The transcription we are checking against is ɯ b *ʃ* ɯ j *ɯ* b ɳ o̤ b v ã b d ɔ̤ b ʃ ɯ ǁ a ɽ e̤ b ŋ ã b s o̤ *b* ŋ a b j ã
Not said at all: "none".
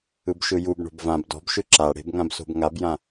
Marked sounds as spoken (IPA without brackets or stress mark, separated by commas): ʃ, u, b